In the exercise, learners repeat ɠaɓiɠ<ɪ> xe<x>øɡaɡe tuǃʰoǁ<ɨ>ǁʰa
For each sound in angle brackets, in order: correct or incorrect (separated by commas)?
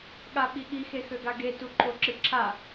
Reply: incorrect, correct, correct